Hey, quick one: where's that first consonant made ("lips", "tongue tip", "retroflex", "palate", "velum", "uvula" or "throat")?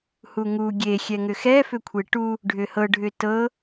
throat